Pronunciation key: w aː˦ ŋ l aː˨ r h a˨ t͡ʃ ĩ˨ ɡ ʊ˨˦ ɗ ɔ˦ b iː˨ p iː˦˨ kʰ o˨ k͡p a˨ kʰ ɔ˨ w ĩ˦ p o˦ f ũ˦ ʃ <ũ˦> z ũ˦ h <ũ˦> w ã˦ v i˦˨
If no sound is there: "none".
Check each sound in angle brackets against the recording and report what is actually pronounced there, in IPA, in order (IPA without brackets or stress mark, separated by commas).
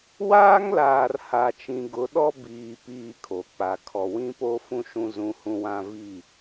ũ˦, ũ˦